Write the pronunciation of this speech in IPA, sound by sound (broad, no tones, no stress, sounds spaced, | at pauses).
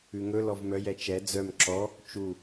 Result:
ʉ ŋ ɵ l ɔ v m œ j ɛ t͡ʃ ɛ d͡z œ m ǁ ɔ | t͡ʃ u